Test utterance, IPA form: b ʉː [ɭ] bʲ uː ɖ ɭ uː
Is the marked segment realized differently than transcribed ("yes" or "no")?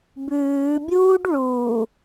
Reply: yes